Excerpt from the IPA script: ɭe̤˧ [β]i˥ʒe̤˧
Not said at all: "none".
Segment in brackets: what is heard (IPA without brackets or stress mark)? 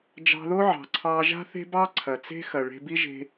b